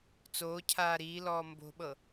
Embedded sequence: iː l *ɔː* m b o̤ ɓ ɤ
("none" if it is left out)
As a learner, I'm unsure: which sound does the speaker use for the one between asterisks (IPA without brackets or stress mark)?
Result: ɔː